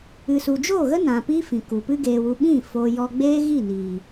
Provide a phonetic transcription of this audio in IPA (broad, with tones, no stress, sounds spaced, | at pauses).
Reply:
ɨ˨ s u˨ d͡ʒ o˦˨ ɣ ə˦ n ã˨ p iː˦ f ĩ˨ k u˨ p ɨ˦ ɡ eː˧ w u˧ ɓ ĩ˦˨ f o˧ j ɔ˧ ɡ͡b eː˦ ɣ i˦˨ n iː˨